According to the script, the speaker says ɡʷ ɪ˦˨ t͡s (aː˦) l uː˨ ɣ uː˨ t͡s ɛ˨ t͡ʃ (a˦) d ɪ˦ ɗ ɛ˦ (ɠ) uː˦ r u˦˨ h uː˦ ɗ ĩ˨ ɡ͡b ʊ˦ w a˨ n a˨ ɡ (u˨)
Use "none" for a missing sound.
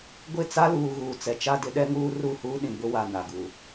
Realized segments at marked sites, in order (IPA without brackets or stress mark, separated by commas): a˦, a˦, ŋ, u˨